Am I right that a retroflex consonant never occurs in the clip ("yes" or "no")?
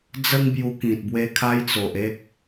yes